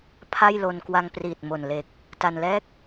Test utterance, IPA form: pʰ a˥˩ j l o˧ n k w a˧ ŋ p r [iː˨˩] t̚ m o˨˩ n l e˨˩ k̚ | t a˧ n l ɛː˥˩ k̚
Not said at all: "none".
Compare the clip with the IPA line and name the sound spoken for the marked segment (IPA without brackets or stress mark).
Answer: iː˨˩